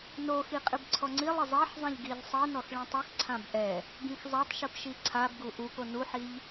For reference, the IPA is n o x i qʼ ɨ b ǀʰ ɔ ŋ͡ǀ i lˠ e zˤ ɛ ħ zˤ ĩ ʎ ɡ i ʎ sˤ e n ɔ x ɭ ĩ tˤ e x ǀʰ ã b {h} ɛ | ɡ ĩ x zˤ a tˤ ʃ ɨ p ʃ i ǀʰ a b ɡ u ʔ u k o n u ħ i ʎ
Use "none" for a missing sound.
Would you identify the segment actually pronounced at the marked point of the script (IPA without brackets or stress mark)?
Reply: ʔ